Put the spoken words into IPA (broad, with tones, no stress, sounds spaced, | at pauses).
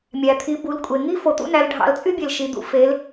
mʲ æ˩ t̪ʰ i˩˧ b u˩˧ l kʷʼ e˩ ŋ i˥ f o˩ t̪ ṵ˥ n æ˩˧ l ɖʱ ɑ̰˩˧ l t͡sʼ y˥ bʲ e˩ l ʃ i˩ d̪ ṵ˩˧ f e˩˧ l